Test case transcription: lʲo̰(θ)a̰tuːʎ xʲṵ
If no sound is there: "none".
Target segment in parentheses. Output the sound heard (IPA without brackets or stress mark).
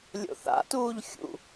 θ